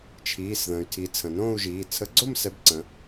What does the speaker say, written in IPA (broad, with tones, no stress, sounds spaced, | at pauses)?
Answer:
t͡ʃʰ iː˩˧˩ s ð ə̃ː˩ y̯ tʰ i˩˧ t͡sʰ ə̃˩ n õː˥˧ u̯ ʒ iː˩˧˩ t͡sʰ ə˨˥ ɡ͡ǀ o˥˧ m s ɛ˨˥ b ǀ ə̃˩˧